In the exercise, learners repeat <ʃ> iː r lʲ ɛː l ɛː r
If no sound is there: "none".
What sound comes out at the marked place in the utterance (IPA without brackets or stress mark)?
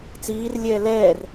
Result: t͡s